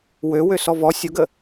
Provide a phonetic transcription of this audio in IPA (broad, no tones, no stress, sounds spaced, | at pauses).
w ø w ø s ɔ v ɔ sʲ o ɡ ə